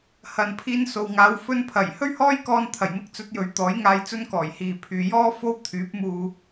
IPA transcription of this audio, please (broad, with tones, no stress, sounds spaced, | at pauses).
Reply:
h ɐ˨ n pʰ iː˧ n s o˨ w ŋ aː˨˧ w f ɵ˧ n pʰ ɐ˨˩ j h ɵ˥ ɥ h ɔː˥ j k ɔː˧ n t̪ʰ ɐ˨˩ j m ɪ˧ k̚ t͡s ɵ˧ t̚ j ɵ˨ ɥ t̪ ɔː˨˥ j ŋ aː˧ j t͡s ɵ˥ n k ɔː˨˩ j h iː˨ pʰ yː˨ j ɔː˥ f o˥ w t̪ʰ yː˨˥ p̚ m uː˧